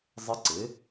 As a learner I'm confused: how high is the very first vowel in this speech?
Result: high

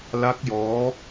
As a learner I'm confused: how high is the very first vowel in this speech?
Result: low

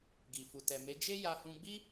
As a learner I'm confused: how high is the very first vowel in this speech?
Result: high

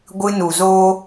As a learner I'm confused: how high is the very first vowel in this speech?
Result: high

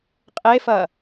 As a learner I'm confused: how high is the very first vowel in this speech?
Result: mid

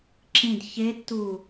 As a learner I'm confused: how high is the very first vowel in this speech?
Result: high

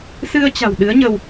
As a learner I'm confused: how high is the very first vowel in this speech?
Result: high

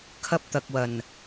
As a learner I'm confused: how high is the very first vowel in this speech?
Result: low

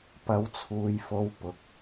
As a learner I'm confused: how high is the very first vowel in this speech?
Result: low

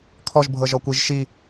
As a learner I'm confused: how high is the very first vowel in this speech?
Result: mid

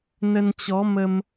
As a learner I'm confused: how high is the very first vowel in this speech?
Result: mid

